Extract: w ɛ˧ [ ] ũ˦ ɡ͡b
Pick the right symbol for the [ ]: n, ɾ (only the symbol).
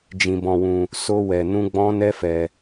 n